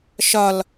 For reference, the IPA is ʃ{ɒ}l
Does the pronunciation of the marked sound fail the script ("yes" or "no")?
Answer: no